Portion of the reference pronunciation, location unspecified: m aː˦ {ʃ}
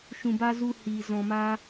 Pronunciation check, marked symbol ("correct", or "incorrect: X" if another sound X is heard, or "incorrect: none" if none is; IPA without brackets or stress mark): incorrect: none